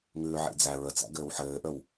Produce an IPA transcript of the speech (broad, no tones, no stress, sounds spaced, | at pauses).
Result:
ŋ ʉː ʕ ḭ d͡z æ ɹ ə t͡s æ̰ ɡ ɘː w ħ ɘː ʔ ə w